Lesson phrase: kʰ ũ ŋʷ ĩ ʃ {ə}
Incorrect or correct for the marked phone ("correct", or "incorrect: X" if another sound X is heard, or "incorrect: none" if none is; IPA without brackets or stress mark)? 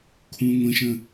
incorrect: ə̃